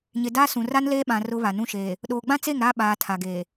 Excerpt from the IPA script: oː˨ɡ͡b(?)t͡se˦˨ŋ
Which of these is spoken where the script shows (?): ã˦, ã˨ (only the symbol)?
ã˦